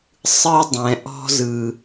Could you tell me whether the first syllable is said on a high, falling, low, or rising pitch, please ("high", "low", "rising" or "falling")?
high